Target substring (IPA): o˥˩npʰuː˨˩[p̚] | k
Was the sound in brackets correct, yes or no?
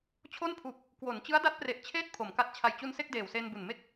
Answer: yes